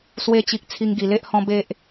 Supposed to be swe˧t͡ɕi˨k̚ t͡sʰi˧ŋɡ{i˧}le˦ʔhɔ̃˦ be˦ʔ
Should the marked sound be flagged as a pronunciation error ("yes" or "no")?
yes